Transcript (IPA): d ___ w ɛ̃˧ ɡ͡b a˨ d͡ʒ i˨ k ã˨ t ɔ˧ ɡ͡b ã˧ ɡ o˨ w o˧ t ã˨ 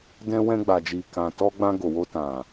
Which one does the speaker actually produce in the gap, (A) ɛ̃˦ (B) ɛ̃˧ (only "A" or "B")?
B